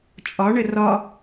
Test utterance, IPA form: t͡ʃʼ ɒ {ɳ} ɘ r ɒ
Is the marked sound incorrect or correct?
correct